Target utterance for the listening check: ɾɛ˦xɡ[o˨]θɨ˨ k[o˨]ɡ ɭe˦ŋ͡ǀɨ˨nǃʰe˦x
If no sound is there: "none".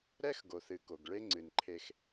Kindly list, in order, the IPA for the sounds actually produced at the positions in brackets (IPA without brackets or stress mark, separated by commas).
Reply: o˨, o˨